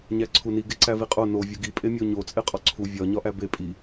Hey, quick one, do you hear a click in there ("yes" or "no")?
yes